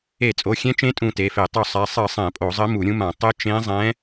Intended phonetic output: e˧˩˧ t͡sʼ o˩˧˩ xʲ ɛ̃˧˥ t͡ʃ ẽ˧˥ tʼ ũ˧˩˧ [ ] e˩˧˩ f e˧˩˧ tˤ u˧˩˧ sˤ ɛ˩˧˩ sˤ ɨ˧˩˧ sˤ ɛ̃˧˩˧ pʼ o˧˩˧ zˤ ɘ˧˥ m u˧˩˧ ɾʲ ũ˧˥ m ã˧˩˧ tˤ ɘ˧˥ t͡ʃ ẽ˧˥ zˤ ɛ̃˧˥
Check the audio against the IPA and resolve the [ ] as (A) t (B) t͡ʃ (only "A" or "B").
A